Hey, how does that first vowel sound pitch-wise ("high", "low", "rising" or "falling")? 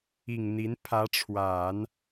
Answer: low